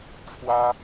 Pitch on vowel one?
high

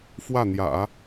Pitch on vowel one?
falling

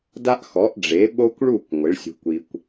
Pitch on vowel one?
high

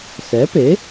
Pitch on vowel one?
rising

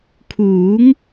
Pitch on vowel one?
rising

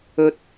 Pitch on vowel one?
low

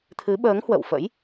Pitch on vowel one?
rising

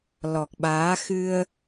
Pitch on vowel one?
low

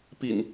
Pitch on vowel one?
low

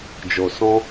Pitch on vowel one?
low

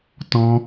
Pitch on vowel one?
high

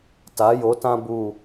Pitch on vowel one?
rising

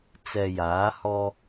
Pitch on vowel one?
low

